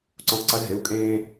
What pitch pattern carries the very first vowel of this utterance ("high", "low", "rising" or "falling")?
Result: rising